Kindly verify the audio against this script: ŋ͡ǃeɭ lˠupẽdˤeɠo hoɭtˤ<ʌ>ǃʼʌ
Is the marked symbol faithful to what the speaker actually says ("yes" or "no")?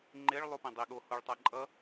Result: no